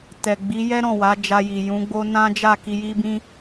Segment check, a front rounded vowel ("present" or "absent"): absent